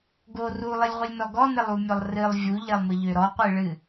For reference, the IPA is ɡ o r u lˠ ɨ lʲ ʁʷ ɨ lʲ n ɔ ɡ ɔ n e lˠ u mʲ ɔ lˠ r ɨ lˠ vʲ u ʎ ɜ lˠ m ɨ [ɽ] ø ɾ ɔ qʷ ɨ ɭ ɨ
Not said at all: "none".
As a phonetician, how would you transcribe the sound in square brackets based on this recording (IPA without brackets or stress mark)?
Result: ʎ